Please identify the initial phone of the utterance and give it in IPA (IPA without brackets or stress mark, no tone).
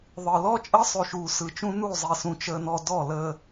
ðˤ